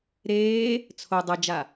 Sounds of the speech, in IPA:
ɾeː | t͡sʰo dˤɤd͡ʒa

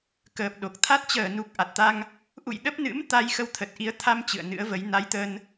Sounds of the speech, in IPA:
kəː˨˩p̚ɗo˨˩k̚t̪ʰa˦˥t̚ t͡ɕəː˧˩nu˨˩k̚ ʔa˨˩t̚t̪a˧ŋ | ʔṵ˧˨j ɗə˦˥p̚nɨ̰˧˥m t̪a˧jxə˧wt̪ʰə˨˩t̚ʔi˨˦ə̯ t̪ʰa˧m t͡ɕɨ̰˧˨ə̯nɨ̰˧˥ə̯və˨˦j na˨˦jt̪ə˧n

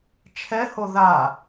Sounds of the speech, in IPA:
t͡ʃʰɛho ða

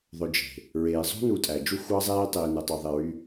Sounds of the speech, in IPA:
ðˤø˨d͡ʒe̤˩ | ɹeː˩ zˤo̤˥nu˨tʼæ˩ d͡ʒu˦xʷɑ˦zˤeː˦tˤiː˩ nɯ˩ tˤu˩ðˤe˩ɹy˨

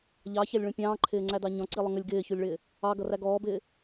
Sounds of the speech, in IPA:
ʎɑçælʲɭũ pʲɑ̃ːǃʰɪːŋ͡ǀædɑ ɲɔ̃ǀilˠʊ ŋəlʲ ɡɪːçulʲɭɪː | ɑɡʌræ ɡɔːbɪː

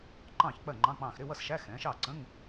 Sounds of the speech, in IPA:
ǃɑ̃ː˥˩çk͡pɜ˥˩ŋ͡ǃɑ̃˧˥˧ k͡pɑ̃ː˧˩xɾɪ˧˥˧wʌ˥˩sʃæ˧˥˧ xɛ̃ː˩˥ʃɑː˥˩ ǀə̃˧˥˧ŋ

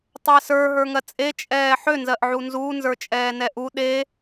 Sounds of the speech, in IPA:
tˤɜsə˞ ɦə˞ŋɜt͡sʼe t͡ʃʼɛːħø nzɜʔʕunzuː nzə˞t͡ʃʼɛːnɛʔu ɗe

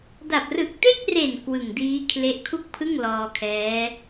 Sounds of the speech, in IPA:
da˨˩p̚rɯ˨˩k̚ te˥˩k̚re˨˩n kwɯ˨˩ŋdiː˦˥kʰle˦˥ʔ kʰu˥˩k̚pʰɯ˥˩ŋ lɔː˧kʰɛː˦˥

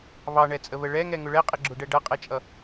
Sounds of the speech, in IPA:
βɑɳɛt͡sʼəβə ɭɛŋɛŋʊ ɭɛqʼɪɡ͡ǁʊɖɛ ɖʌqʼɛt͡ʃʼʌ

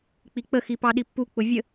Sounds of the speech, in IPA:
k͡pik͡pəxi pɑɗipːuk͡pʊ vʲə

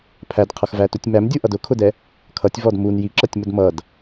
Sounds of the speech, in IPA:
pʰædqʰʌxvætutʲ mæmdʲuʔʌd ʊkʰʊdɛ | kʰʌtʲvɔd mun jiǁʌtʲmʊd mʌd

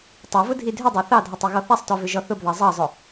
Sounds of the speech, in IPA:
tˤavʊ dʱidʱʏdˤɑ θɑdʱɔtˤ iɣɔθasˤtɔ vʏʒɔθʊbðɑ zˤɑzˤʊ

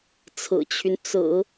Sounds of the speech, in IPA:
t͡sʰɹ̩˨˩t͡ɕʰy˦n t͡sɹ̩˨˩˦

